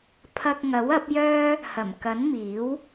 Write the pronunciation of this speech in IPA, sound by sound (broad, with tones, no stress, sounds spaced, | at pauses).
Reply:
pʰ ɐ˧ k̚ ŋ ɐ˨˥ w ɐ˨˥ p̚ j œː˥ | h ɐ˨˩ m k ɐ˨˥ n m iː˨˥ w